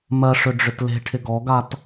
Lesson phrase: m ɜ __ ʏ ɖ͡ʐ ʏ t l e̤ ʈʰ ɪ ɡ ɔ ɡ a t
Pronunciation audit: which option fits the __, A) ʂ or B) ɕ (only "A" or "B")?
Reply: A